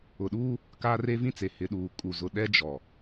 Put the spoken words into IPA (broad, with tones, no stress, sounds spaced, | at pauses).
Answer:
ʊ˨ ɗ uː˦ | k aː˦ r e˦ v ĩ˦ t͡s e˨ h ɪ˨ ɗ uː˨ kʼ u˨ z ʊ˨ ɗ ɛ˦ d͡ʒ ɔ˨